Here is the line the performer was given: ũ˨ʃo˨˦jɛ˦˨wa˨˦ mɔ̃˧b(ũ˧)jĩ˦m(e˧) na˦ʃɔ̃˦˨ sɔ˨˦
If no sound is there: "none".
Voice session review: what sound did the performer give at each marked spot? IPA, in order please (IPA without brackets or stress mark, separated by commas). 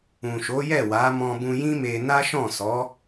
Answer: ũ˧, e˧